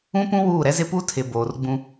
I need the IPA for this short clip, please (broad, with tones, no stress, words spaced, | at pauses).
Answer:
ũ˦pũ˦ wuː˦˨ɾɛ˦zɪ˦ pu˦tʰɪ˨ boː˨rɡ͡bũ˦